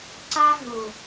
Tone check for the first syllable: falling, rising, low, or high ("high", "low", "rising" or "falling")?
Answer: high